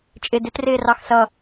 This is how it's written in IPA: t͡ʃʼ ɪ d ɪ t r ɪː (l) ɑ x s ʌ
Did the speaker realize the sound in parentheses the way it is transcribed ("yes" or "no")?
no